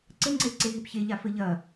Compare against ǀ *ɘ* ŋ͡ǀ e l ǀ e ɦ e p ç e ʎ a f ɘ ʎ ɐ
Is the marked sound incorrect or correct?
correct